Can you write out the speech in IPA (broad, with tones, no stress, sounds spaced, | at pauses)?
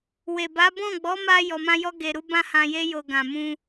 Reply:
w e˨ b a˨˦ b ɔ̃˦˨ ɡ͡b ɔ˨˦ m a˧ j ɔ˧ m ã˦ j ɔ˦ ɡ e˧ ɾ u˦ b ã˦ h ã˧ j e˦ j o˧ ɡ ã˧ m ũ˦